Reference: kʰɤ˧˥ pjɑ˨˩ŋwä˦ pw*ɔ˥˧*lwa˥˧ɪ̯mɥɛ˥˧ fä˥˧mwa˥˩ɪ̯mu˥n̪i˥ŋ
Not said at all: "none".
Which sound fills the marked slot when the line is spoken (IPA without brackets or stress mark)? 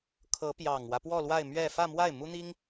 ɔ˥˧